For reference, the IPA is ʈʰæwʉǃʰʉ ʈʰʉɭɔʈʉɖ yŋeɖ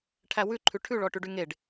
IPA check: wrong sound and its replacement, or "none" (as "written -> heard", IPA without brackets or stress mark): none